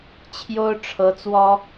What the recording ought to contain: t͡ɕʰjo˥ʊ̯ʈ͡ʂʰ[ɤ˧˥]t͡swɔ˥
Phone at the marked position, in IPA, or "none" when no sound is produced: ɤ˧˥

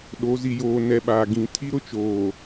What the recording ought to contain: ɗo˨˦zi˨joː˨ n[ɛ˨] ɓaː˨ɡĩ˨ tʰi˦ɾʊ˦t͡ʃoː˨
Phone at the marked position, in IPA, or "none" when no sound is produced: ɛ˨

